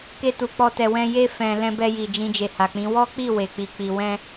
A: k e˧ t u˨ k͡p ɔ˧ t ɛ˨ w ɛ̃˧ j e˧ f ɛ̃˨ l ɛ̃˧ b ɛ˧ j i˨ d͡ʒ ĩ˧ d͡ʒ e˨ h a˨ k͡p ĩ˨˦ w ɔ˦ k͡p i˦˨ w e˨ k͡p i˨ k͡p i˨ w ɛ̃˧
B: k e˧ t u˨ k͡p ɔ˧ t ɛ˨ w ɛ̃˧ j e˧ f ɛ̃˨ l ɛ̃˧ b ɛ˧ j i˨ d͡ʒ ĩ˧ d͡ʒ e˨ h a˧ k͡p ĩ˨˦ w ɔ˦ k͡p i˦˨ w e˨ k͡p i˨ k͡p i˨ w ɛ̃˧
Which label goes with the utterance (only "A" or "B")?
A